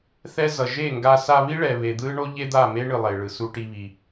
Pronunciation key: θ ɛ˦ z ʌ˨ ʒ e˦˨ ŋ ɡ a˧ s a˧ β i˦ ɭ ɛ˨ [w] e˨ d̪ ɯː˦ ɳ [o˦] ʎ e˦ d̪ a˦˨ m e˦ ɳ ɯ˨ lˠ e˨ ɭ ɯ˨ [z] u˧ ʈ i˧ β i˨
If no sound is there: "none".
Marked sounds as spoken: β, o˦, s

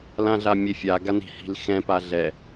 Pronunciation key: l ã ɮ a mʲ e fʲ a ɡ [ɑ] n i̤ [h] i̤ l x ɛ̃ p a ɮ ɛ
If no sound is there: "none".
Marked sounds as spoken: a, h

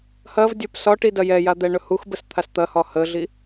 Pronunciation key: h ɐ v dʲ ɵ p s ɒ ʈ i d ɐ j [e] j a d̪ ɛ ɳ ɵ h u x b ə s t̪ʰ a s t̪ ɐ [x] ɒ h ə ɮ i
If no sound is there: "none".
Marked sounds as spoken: ɛ, h

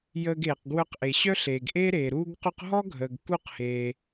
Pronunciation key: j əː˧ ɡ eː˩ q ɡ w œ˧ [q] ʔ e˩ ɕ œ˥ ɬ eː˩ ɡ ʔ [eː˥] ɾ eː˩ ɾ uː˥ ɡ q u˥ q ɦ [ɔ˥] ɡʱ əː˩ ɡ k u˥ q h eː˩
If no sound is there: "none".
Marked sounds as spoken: q, eː˥, ɔ˥

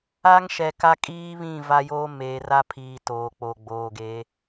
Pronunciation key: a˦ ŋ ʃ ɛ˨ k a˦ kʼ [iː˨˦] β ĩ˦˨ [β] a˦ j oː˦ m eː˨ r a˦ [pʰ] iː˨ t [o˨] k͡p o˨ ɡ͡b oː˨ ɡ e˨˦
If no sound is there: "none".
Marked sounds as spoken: iː˦, v, pʰ, oː˨

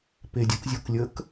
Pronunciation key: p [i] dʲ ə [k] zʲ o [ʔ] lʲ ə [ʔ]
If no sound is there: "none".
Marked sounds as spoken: e, k, k, k

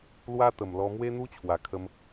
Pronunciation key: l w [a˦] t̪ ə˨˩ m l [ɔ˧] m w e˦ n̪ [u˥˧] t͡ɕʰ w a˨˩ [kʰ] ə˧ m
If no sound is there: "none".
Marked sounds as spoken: a˦, ɔ˧, u˦, kʰ

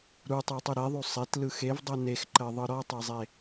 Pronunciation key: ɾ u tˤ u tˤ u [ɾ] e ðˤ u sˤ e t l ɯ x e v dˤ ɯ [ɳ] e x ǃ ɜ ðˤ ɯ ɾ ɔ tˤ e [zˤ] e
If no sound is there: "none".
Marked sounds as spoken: ɾ, n, zˤ

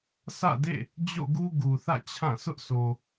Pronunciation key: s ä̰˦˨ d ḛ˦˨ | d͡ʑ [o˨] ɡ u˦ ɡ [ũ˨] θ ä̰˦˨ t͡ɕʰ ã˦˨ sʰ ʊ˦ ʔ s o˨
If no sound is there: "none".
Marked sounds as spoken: o̰˦˨, u˨

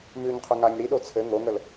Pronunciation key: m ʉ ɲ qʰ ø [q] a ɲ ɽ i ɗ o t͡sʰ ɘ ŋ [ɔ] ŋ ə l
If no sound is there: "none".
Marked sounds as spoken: ŋ, o

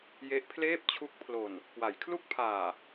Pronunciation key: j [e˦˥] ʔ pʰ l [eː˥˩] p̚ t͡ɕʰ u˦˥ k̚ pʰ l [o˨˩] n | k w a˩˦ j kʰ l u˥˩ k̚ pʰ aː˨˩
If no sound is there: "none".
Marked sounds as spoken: e˦˥, eː˥˩, o˨˩

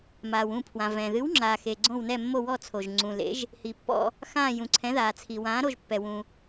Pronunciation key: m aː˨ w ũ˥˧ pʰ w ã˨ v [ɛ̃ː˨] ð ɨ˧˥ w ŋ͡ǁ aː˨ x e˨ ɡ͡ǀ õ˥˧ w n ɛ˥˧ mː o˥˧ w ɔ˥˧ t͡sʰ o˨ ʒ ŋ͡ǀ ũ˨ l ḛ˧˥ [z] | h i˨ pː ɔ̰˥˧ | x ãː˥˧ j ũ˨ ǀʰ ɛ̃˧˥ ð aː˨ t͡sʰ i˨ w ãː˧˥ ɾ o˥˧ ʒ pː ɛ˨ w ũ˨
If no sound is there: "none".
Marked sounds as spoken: ɛ̃ː˨, ʒ

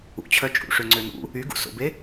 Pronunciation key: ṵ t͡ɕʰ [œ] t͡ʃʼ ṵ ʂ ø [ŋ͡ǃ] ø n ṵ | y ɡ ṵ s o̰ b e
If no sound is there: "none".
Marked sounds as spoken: œ, ŋ͡ǀ

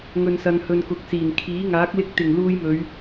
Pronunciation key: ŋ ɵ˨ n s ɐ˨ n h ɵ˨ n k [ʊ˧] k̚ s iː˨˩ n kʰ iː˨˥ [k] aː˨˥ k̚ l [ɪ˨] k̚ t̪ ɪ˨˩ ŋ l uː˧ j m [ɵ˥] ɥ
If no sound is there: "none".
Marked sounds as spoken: ʊ˨, ŋ, ɪ˧, ɵ˨˧

